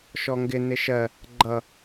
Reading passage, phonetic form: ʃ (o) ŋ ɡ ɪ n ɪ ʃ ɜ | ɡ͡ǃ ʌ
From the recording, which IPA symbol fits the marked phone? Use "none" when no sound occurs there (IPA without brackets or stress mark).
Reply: ɔ